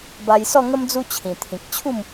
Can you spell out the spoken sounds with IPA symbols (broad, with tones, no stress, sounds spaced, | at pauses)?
b a˧ j s ɔ˥˧ ŋ ə˦ m d͡z u˦ t͡ɕʰ ĩ˨˩ t̪ʰ ĩ˨ k̚ t͡ɕʰ u˥˧ m